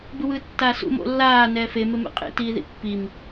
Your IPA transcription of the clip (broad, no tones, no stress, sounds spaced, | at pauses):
b ɯ w ɯː tː aː s ṵ m o̰ lː aː n ɛː f e m e m ḛ qʼ ḛ t iː ð ḭ pː i m